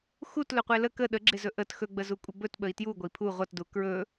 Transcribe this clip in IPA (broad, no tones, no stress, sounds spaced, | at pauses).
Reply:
x u t l ɵ qʷ e l ə k ə ɗ ə ɡ͡ǁ e z ɵ ʔ ə t x ɵ ɡ͡b ə z u kʷʼ ə b ɵ t ɓ ə i̯ t j u ɡʷ ə i̯ pʰ u ʁʷ ʌ t d u k ɹ ɵ